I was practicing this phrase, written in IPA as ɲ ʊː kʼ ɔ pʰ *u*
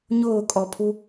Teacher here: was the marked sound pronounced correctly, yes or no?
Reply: yes